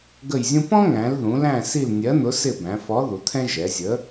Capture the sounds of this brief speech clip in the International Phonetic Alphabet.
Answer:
ɡ ə˦˨ j zʲ ũ˥ p ɔ̃˥ ŋ æ̃˩˧ l ð ũ˩˧ l æ̃˦˨ s i˦˨ l nʲ ɜ˨˥ n̪ ʊ˨˥ s ɪ˦˨ b æ̃˩˧ f ɔ˨˥ ð u˩˧ t̪ʰ ɛ̃˥ ʒ ɛ˩˧ zʲ ə˨˥

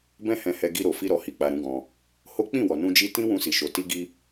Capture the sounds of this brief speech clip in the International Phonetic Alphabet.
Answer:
b ɛ̃˦ h ɛ̃˧ h ɛ˧ ɡ i˧ ɾ o˨ f i˧ ɾ ɔ˨ h i˨ k͡p a˨ ɾ ũ˨˦ ɡ ɔ̃˧ | h o˦ k͡p ĩ˦˨ w ɔ˨ n ũ˧ d͡ʒ i˧ t ĩ˦ w ũ˧ s i˨ ʃ o˨ t i˧ ɡ i˧

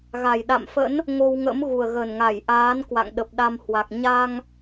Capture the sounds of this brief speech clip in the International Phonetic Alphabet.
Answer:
ɣ a˨˩ j ɗ a̰˧˨ m f ə̰˧˥ n | ŋ o˧ w ŋ ə̰˧˥ m ɣ u˨˩ ə̯ ɣ ə˨˩ n ŋ a˧˩ j ʔ aː˨˦ n k w a̰˧˨ ŋ ɗ ə˨˩ p̚ ɗ a˧ m h w a˨˩ k̚ ɲ a˧ ŋ

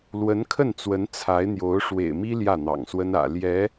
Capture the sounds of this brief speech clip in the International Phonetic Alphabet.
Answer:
l w ə˧˥ n kʰ ə˥˩ n t͡s w ə˧˥ n t͡sʰ a˧˥ ɪ̯ n̪ j o˧˥ ʊ̯ ʂ w ḛ˨˩ ɪ̯ m i˥ l j ä˥˩ n̪ ɑ̰˨˩ ŋ s w ə˥ n ä̰˨˩ l j ɛ˧˥

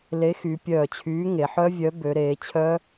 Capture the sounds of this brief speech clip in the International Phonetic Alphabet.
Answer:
l e˨˥ x y˩˧ pʲ œː˧˩ t͡ɕʰ yː˨˥ ŋ e˩˧ ħ œ˦˥ vʲ œ˨˥ b ø˩˧ ɾ eː˩˧ t͡ɕʰ œ˦˥

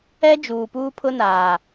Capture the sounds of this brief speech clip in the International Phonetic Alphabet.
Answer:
ɛ˦ d͡ʒ uː˨ p uː˦ pʰ ʊ˦ n aː˨

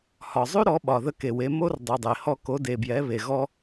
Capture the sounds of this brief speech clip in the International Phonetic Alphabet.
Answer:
h ɒ˨ zˤ ʉ˦ ɾ ɔ˨˦ ɓ ɒ˨ ð ə˧ k e˨ w e˧ m o˦ r dˤ ʉ˨ dˤ e˨ h ɔ˧ k o˨˦ d e˨ b j ɛ˨˦ β e˨ ɣ ɔ˦

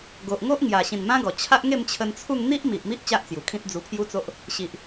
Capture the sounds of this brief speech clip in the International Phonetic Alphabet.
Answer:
ɡ o˨ ʔ ŋ o˦ ʔ ŋ j a˨˩ ɕ ĩ˨˩ n m ã˦ ɡ ɔ˨˩ t͡ɕʰ a˦ ʔ ŋ e˥˧ m t͡ɕʰ ə˧ n t͡sʰ u˥˧ ŋ n̪ i˦ ʔ m i˨ ʔ m i˦ ʔ t͡ɕ a˦ ʔ t͡s j u˨˩ kʰ ĩ˦ t̚ d͡z u˧ pʰ j u˦ t͡s o˦ ʔ | ɕ i˨ ʔ

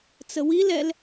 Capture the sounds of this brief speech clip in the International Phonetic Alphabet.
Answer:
t͡s ə w i l ɛ l

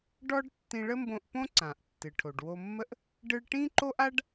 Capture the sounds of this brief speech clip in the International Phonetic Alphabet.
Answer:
ɖ ɔ˥ ɖ tː ĩ˧ ɭ ə˥ m b õ˧ ʔ p õ˥ ǀ ã˩ ʔ tː ɨ˩ ʈʰ o˩ ɖ w o˧ mː ə˥ ʔ | ɖ ɨ˧ ɭ ʈ ĩ˥ ǃ o˥ ʔ a˥ ɖ

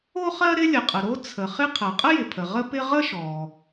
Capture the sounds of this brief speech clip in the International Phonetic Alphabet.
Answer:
o˥ χ ɜ˥ ɾ ɪ˥ lʲ ə˩ qʼ ə˩ ɾ o˥ t͡sʰ ə˩ χ ɪ˥ qʰ ɜ˩ qʼ ə˥ j ɪ˩ pʰ ə˩ ʁ ə˥ p ɪ˥ ʁ ə˥ ʃ ɔ˩

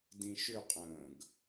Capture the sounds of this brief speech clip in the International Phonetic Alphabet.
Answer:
d ĩ ʃ ʏ qʼ ə̃ː ɡ

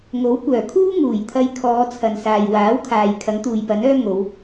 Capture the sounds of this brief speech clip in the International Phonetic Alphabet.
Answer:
ŋ o˨˥ w kʷ œː˨˩ kʰ uː˥ ŋ uː˨˩ j t̪ʰ ɐ˧ j kʰ ɔː˨˧ t͡sʰ ɐ˨ n s aː˨ j w aː˨˥ w kʰ aː˨ j kʰ ɐ˨˥ ŋ t̪ uː˨ j p ɐ˨˥ n œː˥ ŋ o˨˧ w

